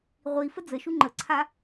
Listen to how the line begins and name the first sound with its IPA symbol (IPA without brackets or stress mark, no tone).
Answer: ʁʷ